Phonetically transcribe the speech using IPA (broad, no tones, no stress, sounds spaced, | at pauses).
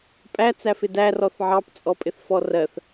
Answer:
pʼ æ t͡s æ f ɪ d æ r ɔ θ ʕ ɑ p t͡sʼ ɔ pʼ ɪ θ f ɔ r ɜ θ